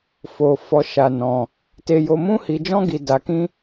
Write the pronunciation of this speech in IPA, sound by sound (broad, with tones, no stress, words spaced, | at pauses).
fo˧fɔ˧ ʃa˧nɔ̃˧ | te˧jo˧ mũ˦hi˧ d͡ʒɔ̃˦ɡi˧da˧kĩ˦